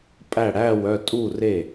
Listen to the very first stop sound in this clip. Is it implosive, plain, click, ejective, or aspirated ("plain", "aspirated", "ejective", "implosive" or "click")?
ejective